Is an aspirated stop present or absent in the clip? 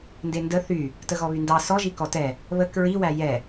absent